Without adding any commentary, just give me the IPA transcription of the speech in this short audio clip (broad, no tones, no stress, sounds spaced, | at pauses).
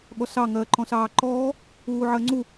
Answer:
ɠ ɔ s ɑ ŋ ɜː ǃ ɔ̃ s ɑː ǃ ɔː | uː ʕ ɜ ŋ͡ǀ u